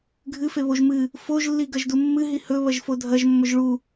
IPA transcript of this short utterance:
ɡʱ ɨ f e β o ʒ m ɨ | f o ʒ lː i ɡ ɐ ʒ d u mː ɨ ɦ i h ɵ β ɐ ʒ f o dʱ ɐ ʒ mː ɵ ʒ ɭ u

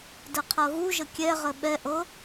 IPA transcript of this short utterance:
d ə qʰ ɤ ɣ u ʒ ə kʲ ɛ ʁ ə ɓ ɛ ʔ ɤ

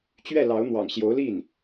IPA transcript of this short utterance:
t͡ɕ ɥ ɛ˥˩ l ɑ˧˥ ʊ̯ n̪ w ɑ̰˨˩ ŋ ɕ j o˧˥ ʊ̯ l i˥˩ n

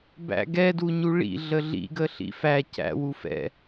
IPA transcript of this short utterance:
b æ̰ ɡ ɛ d u ɲ u ɭ ḭ ɮ ə ɮ ḭ ɡ ə ɬ ḭ f æ c æ̰ w u f ɛ̰

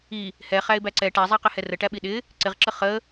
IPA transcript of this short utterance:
i | h ɛ χ æ ɪ̯ b æ ǀ ɛ ʈ æ zˤ æ q ɪ h ɛ r ə ʈ æ ɓ i ɗ ɪ | ǀ ɪ ʁ ǁ ə χ ə

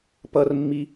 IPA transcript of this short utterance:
p ʌ r mː i

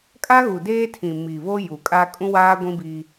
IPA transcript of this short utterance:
kʼ a˦ ɣ u˨ d eː˦ tʰ ĩ˨ m i˨ β o˦ j u˨ kʼ a˦ kʼ ũ˦ w aː˦ ɡʷ ĩ˦ b iː˦

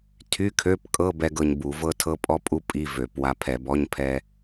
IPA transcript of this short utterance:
tʰ y˧˥˧ kʰ ø˧˥˧ p kʼ ɤ˧˥˧ b ɛ˧ ɡ ɤ˧ ɲ b u˧˩˧ v ɤ˥ tʰ ɤ˥ pʼ ɔ˥ pʼ u˥ pʼ i˧˥˧ v ø˧˩˧ p w a˧ pʰ ɛ˧˩˧ b ɔ˧˥˧ ɲ pʰ ɛ˧

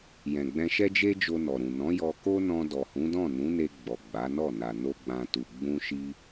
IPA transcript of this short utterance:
j ɛ̃˨ ɡ͡b ɛ̃˧ ʃ ɛ˦ d͡ʒ e˦ d͡ʒ o˧ n ɔ˨ ɾ ũ˨ n ɔ̃˨˦ j ɔ˧ k o˦ n ɔ̃˧ d ɔ˨ h ũ˨˦ d ɔ̃˦˨ n ũ˨˦ n e˧ ɡ͡b ɔ˨ ɡ͡b a˨˦ n ɔ˦˨ n a˨ n o˧ ɡ͡b ã˨ t u˨ ɡ͡b ũ˧ ʃ i˧

